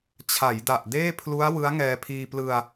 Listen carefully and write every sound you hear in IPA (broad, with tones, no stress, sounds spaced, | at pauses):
t͡ɕʰ a˩˦ j d a˨˩ ʔ d eː˥˩ pʰ l u˦˥ a̯ w ɯ˦˥ a̯ ŋ ɛː˧ pʰ iː˧ p l ɯ˧ a̯